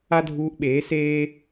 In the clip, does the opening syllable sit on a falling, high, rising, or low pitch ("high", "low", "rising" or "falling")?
high